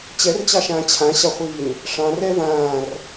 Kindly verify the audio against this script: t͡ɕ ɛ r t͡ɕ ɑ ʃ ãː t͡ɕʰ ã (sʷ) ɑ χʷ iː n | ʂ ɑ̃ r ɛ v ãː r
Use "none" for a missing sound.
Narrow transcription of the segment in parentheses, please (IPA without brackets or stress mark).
ɕ